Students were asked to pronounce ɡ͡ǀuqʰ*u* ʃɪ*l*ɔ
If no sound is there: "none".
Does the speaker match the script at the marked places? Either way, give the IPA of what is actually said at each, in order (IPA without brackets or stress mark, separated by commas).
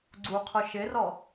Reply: ʊ, r